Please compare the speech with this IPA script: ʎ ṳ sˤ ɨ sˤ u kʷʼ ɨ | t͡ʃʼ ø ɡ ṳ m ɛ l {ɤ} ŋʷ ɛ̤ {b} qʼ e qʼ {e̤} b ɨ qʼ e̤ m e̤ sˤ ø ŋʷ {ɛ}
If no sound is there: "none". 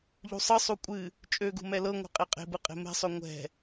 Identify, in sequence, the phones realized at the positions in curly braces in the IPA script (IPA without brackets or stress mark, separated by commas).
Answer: ɤ, none, e̤, ɛ̤